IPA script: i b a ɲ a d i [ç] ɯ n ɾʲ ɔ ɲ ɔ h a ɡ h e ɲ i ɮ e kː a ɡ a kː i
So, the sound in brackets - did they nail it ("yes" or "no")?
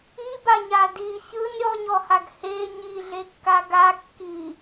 yes